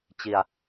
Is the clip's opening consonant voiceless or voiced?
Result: voiceless